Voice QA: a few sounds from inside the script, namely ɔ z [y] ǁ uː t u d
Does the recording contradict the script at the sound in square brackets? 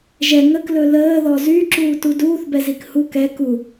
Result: no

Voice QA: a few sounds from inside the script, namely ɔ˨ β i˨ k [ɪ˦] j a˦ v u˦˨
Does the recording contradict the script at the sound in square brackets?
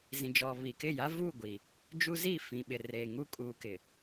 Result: yes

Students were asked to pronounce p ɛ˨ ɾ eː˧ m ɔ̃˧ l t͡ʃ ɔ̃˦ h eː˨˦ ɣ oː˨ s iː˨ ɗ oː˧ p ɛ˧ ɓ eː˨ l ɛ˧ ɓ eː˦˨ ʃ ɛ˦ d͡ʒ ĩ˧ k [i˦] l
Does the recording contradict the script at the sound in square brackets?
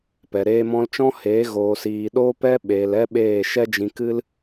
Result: yes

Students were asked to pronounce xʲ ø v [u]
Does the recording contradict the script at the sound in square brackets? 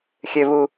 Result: no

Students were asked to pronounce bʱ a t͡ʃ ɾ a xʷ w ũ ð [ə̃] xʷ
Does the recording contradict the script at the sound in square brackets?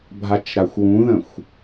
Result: no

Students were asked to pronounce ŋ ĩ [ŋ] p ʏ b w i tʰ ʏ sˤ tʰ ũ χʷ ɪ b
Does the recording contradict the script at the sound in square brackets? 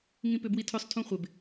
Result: yes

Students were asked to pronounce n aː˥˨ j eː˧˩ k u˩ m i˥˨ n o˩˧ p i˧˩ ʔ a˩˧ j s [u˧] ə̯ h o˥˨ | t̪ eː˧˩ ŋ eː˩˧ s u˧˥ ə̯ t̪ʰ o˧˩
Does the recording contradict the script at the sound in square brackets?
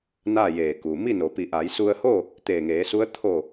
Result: no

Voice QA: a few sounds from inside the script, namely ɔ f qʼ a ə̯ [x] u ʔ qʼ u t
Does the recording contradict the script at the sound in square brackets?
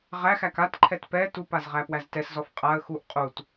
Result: no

